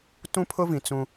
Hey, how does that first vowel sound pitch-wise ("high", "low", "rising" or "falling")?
high